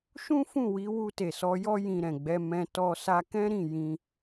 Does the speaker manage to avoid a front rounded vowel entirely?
yes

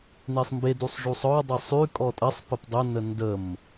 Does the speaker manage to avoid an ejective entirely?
no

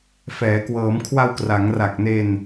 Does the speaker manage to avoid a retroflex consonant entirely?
yes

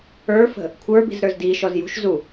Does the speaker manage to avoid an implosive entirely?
yes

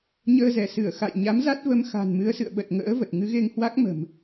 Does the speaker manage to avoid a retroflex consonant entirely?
yes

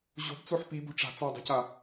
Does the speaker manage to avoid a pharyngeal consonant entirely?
no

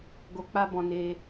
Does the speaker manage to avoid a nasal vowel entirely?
no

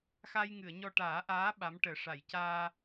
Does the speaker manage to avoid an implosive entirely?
no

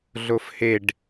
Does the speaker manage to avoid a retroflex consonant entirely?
no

